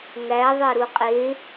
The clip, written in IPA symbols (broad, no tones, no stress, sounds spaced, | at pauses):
ŋ æ ðˤ e ɾ u qʼ e